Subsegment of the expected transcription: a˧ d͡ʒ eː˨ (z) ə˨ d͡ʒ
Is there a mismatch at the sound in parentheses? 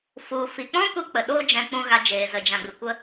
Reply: no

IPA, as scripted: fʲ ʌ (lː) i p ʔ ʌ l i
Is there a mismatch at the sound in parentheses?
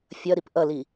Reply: yes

